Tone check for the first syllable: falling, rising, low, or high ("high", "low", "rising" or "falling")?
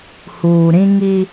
low